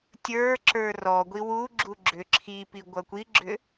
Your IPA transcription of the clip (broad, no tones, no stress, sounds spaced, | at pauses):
tʲ ə˞ ǁ ə˞ r ɔ ɡʷ i w u ɡ͡ǁ u ɡ͡ǁ ʏ ǁʰ i p i ɡʷ ʌ kʷ i ɡ͡ǁ ʏ